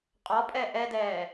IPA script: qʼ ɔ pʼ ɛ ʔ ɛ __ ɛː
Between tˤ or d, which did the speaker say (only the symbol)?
d